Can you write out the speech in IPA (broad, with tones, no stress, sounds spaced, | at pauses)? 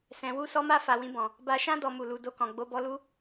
s ɛ̃˨ w u˧ s ɔ˧ m a˧ f a˨ w ĩ˧ b ɔ̃˨ | b a˧ ʃ ã˦ d ɔ˧ m u˨ l u˨ d o˧ k ɔ̃˨ ɡ͡b o˨˦ b ɔ˧ l u˦